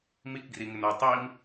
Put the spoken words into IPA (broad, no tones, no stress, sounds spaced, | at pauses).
m i k ɡ r i ŋ ɪ n o tˤ i m